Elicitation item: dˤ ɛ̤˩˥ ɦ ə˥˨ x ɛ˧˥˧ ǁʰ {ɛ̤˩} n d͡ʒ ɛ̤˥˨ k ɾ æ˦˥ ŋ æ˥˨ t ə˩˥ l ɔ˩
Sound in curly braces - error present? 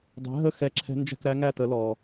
yes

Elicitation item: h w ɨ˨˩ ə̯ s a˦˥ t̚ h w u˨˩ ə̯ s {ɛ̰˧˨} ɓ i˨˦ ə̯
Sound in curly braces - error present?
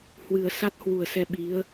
yes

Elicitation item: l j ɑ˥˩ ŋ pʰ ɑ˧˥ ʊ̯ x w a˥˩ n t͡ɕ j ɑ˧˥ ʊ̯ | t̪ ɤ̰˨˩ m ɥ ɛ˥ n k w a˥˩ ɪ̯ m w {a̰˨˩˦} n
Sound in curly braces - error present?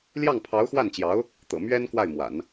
no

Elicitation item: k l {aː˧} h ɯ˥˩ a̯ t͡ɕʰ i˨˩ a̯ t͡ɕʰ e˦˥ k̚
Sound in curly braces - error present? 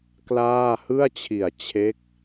yes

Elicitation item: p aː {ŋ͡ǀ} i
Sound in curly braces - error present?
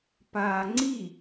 no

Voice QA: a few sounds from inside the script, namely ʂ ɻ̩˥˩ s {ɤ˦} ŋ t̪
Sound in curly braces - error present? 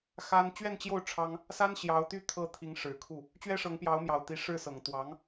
yes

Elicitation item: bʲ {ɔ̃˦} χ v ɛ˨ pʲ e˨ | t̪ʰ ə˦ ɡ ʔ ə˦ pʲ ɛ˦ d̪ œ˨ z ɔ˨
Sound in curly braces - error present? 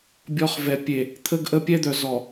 yes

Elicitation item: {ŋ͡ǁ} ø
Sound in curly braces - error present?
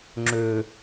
no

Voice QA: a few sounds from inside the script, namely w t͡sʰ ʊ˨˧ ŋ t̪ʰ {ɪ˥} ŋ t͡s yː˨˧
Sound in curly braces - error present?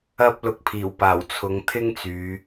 no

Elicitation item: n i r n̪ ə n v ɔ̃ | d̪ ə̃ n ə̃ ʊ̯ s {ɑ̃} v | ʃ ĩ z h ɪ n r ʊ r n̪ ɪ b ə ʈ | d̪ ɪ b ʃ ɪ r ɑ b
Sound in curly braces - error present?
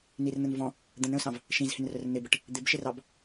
no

